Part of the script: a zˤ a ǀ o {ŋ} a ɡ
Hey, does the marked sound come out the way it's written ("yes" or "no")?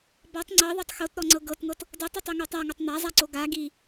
no